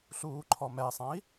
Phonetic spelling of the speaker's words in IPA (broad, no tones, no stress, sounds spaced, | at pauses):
ɬ uː ǃʰ ɔ m ɛ sˤ ã i̯